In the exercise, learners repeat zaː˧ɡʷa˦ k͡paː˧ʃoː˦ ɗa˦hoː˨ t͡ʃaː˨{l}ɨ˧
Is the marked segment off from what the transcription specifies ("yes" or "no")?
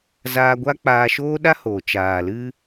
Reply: no